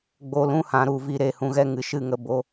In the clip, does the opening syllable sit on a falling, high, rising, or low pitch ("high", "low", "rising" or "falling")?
low